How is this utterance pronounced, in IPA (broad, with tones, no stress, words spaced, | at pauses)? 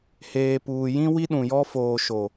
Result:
heː˨ puː˨jĩ˦ wi˦ɗũ˨jɔ˦ foː˨ʃo˨